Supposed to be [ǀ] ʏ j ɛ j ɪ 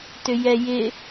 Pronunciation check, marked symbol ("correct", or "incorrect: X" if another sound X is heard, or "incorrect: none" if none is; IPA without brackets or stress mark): incorrect: t